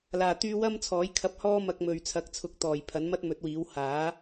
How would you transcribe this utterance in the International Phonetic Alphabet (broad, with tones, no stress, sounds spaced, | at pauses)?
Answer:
l aː˨˩ t̪ yː˧ w ɐ˥ m t͡sʰ ɔː˨˥ j kʰ ɐ˧ p̚ h ɔː˥ m ɐ˧ k̚ m ɵ˨ ɥ t͡sʰ ɐ˨˥ k̚ t͡sʰ ʊ˨˥ k̚ t̪ ɔː˨˩ j pʰ ɐ˨˥ n m ɐ˥ t̚ m ɵ˨˥ t̚ w iː˨˥ w h aː˨˥